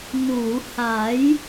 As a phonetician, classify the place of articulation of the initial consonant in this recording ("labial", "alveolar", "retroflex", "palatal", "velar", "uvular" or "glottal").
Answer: alveolar